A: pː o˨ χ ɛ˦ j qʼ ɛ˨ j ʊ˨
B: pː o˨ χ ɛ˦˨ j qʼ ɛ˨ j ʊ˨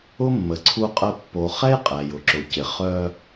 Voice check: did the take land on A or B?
A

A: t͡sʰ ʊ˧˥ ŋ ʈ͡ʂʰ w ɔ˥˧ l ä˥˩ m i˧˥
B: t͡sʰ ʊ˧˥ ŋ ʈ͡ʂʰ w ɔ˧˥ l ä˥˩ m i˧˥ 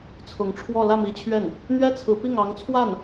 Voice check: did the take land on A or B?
A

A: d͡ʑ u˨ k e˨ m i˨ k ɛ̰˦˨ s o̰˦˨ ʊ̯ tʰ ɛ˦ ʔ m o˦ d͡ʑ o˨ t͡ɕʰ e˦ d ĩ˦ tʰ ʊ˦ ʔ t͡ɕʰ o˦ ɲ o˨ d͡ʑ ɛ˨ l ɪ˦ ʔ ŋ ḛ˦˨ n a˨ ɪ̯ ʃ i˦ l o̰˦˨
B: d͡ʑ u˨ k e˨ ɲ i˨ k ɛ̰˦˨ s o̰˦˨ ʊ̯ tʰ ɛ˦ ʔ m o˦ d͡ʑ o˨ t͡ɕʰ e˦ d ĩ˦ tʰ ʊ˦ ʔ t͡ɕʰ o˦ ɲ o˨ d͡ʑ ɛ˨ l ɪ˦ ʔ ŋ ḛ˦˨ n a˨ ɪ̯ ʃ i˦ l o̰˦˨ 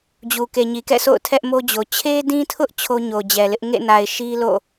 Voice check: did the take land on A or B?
B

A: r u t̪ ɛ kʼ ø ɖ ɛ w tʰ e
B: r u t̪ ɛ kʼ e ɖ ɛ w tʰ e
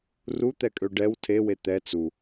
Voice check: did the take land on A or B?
A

